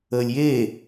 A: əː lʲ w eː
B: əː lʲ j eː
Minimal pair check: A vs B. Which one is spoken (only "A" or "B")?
B